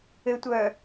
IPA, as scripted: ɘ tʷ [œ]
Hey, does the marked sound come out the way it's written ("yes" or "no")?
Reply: yes